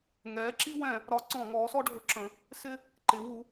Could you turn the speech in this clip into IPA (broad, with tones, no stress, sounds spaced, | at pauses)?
ŋ ɛː˩˥ ǁ i˦ w ɛ̃˧˩˧ | ɾ ɒ˩˥ ǀ ɔ̃˧˩˧ ŋ ɔː˩˥ s ɔ˦ ɖʱ ʊ˩˥ ǁ ə̃˩˧ | s ɪ˦ | ǃ ɪ˩˧ w u˩˧